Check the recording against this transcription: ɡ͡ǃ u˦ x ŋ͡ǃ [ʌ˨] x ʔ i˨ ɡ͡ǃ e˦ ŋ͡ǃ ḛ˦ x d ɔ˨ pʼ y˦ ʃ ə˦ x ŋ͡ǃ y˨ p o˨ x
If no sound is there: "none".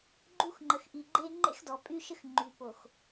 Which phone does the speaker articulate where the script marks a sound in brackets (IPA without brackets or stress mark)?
ə˨